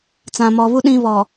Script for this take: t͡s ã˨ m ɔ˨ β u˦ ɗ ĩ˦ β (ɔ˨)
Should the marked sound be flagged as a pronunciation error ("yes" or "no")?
no